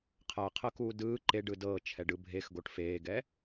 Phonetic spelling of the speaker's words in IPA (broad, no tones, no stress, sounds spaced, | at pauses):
qʰ a qʰ ɤ k uː d ɯː ǃ e ɖ ɯ d ɤː t͡ʃʰ ɛ ɖ ɯ bʱ e x ɡ o ʈ f eː ɡ ɛ